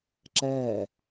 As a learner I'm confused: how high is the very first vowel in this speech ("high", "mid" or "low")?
mid